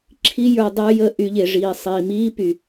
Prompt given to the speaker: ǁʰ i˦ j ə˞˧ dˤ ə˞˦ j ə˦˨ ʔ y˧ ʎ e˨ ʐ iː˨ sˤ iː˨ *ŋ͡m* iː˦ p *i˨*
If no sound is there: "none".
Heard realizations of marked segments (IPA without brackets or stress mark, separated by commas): m, y˨